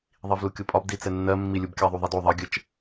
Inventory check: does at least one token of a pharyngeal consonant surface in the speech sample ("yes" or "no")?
no